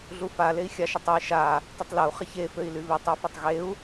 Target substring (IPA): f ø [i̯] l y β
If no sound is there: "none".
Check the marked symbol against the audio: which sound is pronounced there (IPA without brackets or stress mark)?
i̯